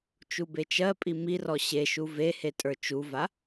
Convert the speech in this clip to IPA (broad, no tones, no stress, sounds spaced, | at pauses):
t͡ʃ u b e t͡ʃ ɜ pʼ i m i r ɔ ɕ e ʃ u v e h e tʼ ə˞ t͡ʃ u v a